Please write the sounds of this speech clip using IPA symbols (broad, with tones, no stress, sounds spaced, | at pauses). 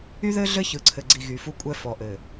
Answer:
y˦ ð ɘ˦ ɮ ɘ˦ ç ɯ˨ ǀʰ ɘ˨ ɡ͡ǀ i˨ ɣ y˨ f u˦ kʷʼ ɛ˦ f ɔ˨ ʔ ɘ˨